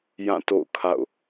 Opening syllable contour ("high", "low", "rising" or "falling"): falling